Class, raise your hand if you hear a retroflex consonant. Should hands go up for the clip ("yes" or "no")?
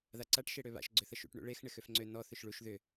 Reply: yes